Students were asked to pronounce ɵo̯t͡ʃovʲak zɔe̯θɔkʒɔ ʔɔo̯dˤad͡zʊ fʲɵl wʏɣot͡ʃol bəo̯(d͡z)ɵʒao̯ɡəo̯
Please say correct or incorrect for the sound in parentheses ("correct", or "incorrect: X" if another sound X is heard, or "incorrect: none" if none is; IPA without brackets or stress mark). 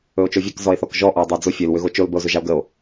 incorrect: z